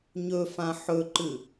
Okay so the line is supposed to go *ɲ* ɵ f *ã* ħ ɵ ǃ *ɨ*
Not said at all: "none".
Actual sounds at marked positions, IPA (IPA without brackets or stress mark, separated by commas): ɲ, ã, ɨ